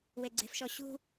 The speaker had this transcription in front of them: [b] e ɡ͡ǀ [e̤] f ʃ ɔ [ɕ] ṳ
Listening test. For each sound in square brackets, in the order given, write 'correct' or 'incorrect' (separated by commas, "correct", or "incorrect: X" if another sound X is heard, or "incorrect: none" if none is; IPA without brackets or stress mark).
incorrect: w, correct, correct